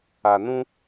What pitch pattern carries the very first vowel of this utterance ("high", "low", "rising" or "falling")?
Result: low